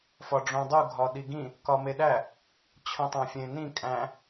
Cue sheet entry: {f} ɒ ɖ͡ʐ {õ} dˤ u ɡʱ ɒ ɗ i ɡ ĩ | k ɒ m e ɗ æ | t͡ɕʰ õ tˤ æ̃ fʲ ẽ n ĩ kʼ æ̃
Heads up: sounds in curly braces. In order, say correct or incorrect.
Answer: correct, correct

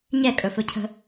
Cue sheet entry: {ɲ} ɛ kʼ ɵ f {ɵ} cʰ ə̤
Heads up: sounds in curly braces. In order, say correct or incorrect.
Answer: correct, correct

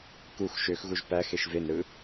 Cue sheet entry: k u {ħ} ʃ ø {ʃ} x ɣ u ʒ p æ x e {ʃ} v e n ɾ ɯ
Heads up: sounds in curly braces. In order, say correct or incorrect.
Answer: incorrect: x, incorrect: none, correct

